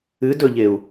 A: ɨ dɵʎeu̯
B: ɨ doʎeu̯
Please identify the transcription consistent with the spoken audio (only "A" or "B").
A